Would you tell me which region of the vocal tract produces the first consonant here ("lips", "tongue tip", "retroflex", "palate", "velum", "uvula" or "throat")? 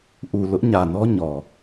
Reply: throat